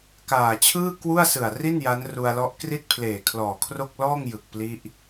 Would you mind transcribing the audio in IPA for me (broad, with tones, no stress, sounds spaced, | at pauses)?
k aː˨˩ t͡ɕʰ ɯː˥˩ k w u˥˩ a̯ s ɯ˨˩ a̯ r i˥˩ n j a˦˥ n r u˧ a̯ l ɔ˦˥ ʔ k r i˥˩ t̚ pʰ l eː˨˩ kʰ l ɔː˨˩ kʰ r o˥˩ k̚ l ɔː˥˩ ŋ j ɯ˨˩ k̚ p l i˦˥ ʔ